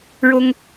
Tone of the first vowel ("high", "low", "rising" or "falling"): high